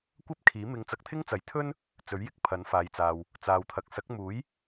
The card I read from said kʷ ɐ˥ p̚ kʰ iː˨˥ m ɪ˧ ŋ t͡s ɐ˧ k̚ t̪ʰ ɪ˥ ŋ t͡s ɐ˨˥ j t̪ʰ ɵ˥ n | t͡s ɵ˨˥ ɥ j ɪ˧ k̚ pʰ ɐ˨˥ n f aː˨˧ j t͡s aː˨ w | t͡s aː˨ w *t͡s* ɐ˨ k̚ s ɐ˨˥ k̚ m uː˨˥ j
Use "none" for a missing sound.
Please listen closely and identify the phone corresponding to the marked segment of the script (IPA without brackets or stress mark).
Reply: t̪ʰ